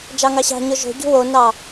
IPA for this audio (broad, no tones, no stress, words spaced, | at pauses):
d͡ʒɑŋɑɕɑ̤ɲo ʒo̤ ɟṳwonɑ